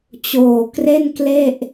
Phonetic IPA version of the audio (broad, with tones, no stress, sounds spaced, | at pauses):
t͡ɕ oː˨˩ k r e˥˩ n k l e˥˩ ʔ